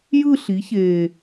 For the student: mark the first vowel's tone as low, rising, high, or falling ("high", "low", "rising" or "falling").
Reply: falling